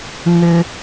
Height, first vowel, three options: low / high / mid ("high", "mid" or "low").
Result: high